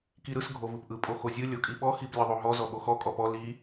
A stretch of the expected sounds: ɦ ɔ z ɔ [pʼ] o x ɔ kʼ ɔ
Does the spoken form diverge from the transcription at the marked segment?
yes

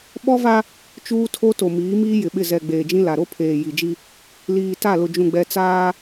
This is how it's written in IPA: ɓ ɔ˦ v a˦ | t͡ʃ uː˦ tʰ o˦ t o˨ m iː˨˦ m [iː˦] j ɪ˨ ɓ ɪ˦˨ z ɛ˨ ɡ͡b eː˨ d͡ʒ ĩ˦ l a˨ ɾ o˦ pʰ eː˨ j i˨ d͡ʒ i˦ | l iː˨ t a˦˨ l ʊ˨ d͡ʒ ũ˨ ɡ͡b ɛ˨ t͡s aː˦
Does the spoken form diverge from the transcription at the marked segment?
no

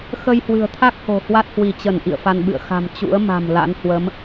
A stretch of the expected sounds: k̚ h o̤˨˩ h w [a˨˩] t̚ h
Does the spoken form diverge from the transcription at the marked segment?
yes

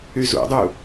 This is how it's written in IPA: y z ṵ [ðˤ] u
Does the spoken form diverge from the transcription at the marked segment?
yes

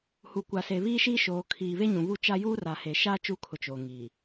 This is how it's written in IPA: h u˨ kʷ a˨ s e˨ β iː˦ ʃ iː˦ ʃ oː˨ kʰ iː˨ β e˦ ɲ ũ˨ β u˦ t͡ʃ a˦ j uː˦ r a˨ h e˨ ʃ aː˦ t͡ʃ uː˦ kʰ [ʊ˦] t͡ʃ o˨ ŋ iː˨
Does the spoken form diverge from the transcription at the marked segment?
yes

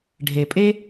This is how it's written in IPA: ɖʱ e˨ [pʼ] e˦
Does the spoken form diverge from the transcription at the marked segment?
no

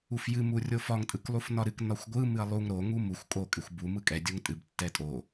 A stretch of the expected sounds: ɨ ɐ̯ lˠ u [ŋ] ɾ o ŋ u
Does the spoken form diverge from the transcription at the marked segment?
no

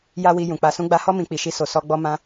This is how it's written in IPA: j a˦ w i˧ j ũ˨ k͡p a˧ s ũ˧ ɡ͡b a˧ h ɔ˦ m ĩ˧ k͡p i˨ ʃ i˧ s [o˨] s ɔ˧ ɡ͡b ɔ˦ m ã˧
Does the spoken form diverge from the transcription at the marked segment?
no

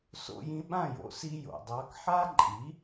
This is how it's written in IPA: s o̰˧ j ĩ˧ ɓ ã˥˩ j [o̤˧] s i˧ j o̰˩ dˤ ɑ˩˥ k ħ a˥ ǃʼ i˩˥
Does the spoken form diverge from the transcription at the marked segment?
yes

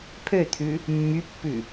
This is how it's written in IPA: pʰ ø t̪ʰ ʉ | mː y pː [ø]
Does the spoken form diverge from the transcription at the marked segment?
yes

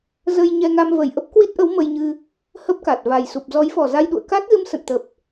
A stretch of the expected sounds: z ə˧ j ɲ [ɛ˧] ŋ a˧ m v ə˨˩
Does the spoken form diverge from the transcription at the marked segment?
no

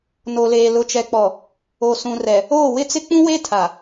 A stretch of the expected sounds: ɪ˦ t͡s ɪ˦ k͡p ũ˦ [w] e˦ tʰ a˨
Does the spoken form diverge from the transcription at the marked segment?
no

